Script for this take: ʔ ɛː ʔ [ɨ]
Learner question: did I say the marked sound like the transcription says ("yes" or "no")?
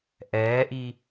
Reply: no